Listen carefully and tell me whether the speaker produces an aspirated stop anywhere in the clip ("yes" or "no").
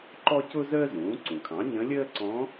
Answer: yes